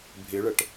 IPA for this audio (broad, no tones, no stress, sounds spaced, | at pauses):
bʱ ɪ ɭ ə ʈ